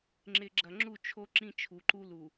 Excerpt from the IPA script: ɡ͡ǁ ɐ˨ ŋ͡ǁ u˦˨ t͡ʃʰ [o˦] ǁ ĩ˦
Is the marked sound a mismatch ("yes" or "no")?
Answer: no